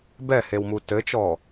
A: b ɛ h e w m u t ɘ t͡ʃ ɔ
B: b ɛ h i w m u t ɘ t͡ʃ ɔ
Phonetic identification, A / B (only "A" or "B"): A